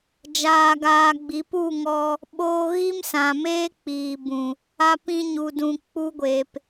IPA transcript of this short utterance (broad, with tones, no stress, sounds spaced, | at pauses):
d͡ʒ aː˧ ɡ aː˧ ɡ͡b i˨˦ p u˦˨ ŋ ɔ˧ | ɓ oː˧ ɣ i˦ m s ã˨ m eː˦ k͡p iː˨ b ũ˨ | a˧ p ĩ˧ ɲ u˨ d ũ˨ k͡p u˧ ɡʷ eː˨ p